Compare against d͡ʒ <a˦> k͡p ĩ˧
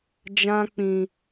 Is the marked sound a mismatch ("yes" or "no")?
yes